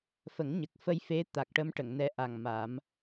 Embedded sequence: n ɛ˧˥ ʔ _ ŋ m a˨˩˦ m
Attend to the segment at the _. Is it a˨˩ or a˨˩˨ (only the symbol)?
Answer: a˨˩